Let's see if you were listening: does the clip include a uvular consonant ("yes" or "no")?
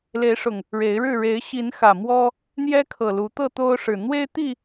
no